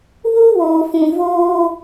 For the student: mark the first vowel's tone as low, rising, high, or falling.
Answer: high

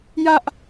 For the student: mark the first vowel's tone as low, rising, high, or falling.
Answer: high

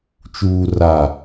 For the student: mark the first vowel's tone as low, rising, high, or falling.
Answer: low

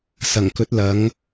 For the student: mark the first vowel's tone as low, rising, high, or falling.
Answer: low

